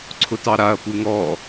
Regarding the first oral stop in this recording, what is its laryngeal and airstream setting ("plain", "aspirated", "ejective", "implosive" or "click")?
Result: click